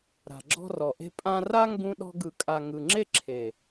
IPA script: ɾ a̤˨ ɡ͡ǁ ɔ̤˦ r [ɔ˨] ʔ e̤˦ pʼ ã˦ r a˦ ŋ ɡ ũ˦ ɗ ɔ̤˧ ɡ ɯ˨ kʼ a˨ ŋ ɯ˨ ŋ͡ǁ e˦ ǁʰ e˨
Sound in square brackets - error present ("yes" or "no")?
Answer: no